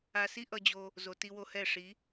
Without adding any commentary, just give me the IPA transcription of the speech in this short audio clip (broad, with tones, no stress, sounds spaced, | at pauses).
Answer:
a˧ s i˦ ʔ ʌ˧ d͡ʑ o˧ | z o˨ t i˧ w o˧ h ɛ˦˨ ʂ i˨˦